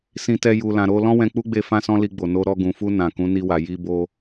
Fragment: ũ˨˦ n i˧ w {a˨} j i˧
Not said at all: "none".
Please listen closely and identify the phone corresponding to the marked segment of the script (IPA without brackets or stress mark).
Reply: a˨